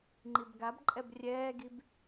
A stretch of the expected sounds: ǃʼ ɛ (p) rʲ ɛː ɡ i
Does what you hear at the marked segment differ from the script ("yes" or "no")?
yes